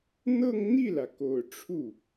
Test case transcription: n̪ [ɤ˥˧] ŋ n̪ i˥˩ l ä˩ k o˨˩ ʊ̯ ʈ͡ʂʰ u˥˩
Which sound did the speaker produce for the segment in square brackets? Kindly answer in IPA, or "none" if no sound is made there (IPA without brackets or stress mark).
ɤ˥˧